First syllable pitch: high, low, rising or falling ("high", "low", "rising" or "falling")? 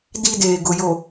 high